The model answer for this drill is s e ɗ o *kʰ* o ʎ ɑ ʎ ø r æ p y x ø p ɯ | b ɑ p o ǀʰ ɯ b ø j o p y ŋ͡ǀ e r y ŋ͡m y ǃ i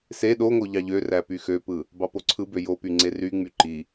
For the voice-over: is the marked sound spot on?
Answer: no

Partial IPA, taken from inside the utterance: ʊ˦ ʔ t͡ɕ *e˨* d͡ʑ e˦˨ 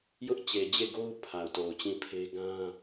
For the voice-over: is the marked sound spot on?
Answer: yes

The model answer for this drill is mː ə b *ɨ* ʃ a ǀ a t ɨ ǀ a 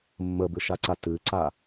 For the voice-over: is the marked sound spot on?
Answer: yes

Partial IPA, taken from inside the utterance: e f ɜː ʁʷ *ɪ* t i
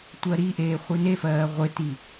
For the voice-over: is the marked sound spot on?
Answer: yes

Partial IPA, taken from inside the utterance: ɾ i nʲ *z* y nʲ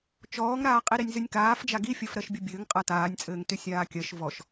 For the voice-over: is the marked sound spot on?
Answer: yes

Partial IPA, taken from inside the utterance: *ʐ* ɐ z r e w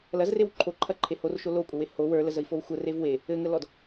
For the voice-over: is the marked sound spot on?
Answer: no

